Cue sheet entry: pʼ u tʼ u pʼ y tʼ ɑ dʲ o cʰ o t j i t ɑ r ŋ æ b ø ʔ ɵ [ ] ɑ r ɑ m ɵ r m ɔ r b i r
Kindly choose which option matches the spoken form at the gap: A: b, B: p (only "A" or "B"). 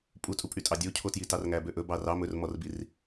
A